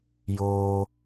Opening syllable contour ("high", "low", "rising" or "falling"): high